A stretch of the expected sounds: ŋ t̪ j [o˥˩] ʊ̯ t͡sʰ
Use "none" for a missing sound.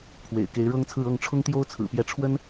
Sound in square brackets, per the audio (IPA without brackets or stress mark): o˥